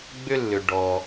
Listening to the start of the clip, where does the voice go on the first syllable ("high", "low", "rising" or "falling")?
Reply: high